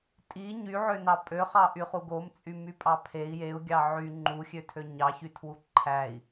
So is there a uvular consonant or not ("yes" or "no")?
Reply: yes